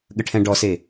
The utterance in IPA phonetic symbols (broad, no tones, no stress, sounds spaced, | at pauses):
ɠ ə ʈʰ ɛ̃ ɖ ɔ s e